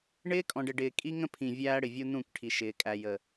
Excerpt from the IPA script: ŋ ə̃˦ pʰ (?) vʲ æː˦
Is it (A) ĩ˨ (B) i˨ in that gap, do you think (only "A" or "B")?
A